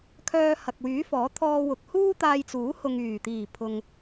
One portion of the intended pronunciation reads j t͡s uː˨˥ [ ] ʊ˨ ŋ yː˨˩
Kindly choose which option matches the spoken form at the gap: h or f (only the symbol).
h